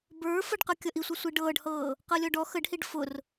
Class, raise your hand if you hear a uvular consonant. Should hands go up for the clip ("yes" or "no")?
yes